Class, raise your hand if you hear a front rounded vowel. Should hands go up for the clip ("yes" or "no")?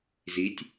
no